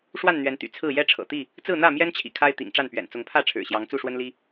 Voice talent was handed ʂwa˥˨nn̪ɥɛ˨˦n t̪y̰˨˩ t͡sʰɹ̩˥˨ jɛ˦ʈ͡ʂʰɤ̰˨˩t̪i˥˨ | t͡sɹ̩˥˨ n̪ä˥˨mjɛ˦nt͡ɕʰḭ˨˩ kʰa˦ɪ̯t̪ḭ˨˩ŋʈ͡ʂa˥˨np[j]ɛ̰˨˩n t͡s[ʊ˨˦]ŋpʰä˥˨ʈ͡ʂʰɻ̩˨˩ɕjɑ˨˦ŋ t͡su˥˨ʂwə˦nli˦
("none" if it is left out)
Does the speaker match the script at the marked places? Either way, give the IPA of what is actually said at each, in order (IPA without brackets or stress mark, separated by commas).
ɥ, ʊ˨˦